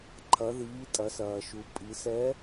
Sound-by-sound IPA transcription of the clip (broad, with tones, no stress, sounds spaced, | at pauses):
ǃʰ ɐ˩˧ ð iː˩˧ tʼ ɐ˩˧ s ɐː˩ ʃ u˩˧ pʼ i˩˧ s ɛ˧˥